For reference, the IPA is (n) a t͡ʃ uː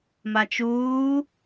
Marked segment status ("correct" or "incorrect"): incorrect